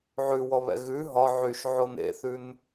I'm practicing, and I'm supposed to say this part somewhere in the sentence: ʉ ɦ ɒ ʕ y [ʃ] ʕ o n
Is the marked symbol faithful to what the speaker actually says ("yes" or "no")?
yes